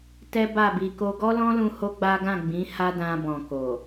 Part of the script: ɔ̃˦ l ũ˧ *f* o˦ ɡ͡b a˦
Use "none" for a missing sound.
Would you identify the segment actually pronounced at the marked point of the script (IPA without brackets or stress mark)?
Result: h